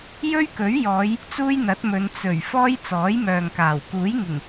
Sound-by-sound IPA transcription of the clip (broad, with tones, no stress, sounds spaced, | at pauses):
j ɵ˥ ɥ k ɵ˨˥ ɥ j ɔː˨˧ j | t͡s uː˥ j n̪ ɐ˨˥ t̚ m ɵ˨˧ n t͡s ɵ˨˩ ɥ f ɔː˥ j t͡s ɔː˨˥ j m œː˨ ŋ k aː˨˩ w k uː˨˥ j ŋ ɪ˨˩ ŋ